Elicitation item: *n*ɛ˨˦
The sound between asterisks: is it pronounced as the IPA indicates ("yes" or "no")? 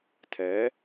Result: no